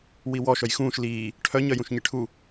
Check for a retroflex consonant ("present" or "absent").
present